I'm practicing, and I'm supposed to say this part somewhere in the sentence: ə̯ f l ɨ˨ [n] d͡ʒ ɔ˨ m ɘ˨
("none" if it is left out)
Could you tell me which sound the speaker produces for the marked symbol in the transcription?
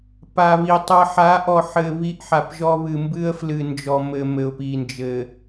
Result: n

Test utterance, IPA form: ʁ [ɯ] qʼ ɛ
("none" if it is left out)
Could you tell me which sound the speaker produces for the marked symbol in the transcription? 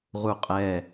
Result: u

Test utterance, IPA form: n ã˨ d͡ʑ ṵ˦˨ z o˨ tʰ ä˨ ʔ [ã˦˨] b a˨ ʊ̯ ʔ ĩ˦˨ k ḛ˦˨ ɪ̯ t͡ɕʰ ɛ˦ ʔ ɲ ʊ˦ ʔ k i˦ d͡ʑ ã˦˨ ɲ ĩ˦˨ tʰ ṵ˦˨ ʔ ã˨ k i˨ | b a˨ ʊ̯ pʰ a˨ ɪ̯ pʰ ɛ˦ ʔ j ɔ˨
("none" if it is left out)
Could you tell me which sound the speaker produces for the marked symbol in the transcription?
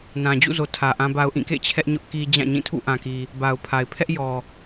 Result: ã˨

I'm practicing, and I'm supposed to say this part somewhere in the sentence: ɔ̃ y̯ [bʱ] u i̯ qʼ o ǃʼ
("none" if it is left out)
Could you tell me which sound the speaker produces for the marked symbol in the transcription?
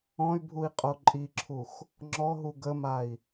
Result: bʱ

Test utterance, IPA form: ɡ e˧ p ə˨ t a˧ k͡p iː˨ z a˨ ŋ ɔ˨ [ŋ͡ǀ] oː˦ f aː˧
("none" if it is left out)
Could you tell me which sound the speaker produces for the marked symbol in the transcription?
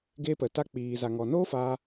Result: n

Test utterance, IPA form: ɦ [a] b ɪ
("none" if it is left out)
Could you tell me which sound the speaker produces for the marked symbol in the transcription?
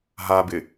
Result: a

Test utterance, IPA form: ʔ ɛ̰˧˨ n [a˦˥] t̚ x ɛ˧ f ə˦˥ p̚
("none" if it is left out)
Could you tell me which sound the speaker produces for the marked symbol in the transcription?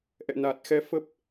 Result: a˨˩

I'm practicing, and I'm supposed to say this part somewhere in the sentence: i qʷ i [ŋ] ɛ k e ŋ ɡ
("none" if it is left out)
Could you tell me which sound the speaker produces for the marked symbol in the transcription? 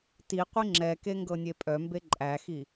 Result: ŋ͡ǁ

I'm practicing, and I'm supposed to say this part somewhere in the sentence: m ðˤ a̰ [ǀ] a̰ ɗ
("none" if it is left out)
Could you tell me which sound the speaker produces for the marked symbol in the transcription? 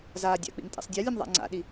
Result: ŋ͡ǀ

